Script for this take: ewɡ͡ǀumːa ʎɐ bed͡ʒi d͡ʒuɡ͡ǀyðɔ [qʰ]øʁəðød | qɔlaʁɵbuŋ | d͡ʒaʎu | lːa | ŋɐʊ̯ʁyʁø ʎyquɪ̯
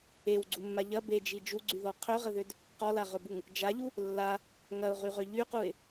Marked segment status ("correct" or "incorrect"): correct